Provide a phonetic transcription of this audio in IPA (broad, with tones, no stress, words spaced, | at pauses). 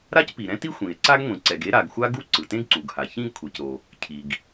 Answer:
ɾa˥cpi˩ɾɛ̃˥ti˥ xʷĩ˩e̯ ǀa˥ɡŋʷĩ˩ǀɛ˩ɡ e˥ɾa˩ɡxʷa˥ɡu˥ ǀɯ˩tẽ˥ɡǀu˩ɡha˩ çĩ˥ɡkʷʰe˩cɾo˩ | cʰi˩ɡ